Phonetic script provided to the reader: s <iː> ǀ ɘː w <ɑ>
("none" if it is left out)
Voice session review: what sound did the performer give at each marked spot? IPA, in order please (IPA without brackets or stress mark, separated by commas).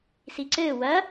i, ɐ